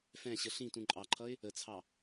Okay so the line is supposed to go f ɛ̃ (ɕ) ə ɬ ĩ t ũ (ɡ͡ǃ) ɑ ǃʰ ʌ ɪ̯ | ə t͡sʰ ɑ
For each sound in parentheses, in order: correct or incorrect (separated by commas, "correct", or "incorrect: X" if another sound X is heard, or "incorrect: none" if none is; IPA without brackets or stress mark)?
correct, incorrect: ǃʼ